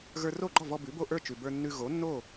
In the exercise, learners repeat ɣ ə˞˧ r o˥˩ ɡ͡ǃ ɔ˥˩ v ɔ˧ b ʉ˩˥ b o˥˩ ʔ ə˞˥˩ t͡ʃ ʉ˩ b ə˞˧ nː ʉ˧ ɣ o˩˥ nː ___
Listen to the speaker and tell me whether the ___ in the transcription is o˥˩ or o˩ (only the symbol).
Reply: o˥˩